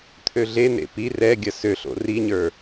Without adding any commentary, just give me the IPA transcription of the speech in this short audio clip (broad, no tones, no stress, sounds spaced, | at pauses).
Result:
t̪ʰ ø ɮ e n̪ ḛ p i r ɛ ɡʲ ɐ s ø ɬ o̰ r i ɲ ə˞